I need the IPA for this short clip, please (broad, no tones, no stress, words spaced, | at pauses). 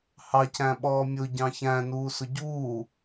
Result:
hɑ cæ̃ɓɔːmʲʊ ɟɑ̃çæ̃ nuːsʊɟuː